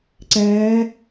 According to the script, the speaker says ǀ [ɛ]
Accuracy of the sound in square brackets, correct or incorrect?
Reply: incorrect